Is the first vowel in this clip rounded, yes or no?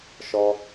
yes